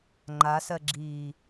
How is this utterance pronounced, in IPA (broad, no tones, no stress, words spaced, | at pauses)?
ŋ͡ǃasɜɡ͡ǁiː